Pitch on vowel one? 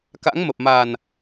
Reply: rising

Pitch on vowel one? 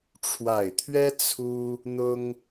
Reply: low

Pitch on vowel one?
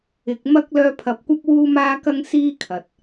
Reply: low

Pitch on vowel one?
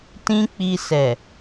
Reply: high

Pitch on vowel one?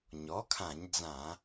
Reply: rising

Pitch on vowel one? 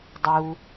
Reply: low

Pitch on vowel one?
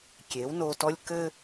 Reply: rising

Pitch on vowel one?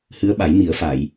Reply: rising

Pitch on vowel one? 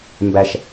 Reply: high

